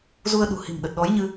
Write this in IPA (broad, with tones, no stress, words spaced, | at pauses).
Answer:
zu˧ə̯ɗṳ˨˩ hi̤˨˩mɗə˨˩t̚ɗɔ˨˦jɲɨ˧